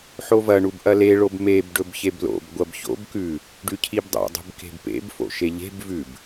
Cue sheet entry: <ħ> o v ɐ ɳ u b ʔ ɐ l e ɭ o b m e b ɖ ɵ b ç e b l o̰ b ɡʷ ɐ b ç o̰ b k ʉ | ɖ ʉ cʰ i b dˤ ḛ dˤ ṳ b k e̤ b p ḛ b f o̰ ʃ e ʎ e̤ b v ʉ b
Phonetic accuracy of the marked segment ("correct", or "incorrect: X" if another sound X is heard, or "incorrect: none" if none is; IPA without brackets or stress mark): correct